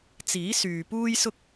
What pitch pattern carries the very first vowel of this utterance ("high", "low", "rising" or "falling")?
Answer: rising